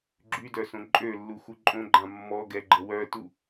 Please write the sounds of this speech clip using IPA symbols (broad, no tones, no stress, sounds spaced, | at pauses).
ɡ͡ǁ y d œ s õ ǃʼ ø lː u x u ǃʼ õ ɡ͡ǃ ã mː ɔ ɡ ɛ ɡ͡ǃ ə w œ t u